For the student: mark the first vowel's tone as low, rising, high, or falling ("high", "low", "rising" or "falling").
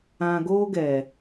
low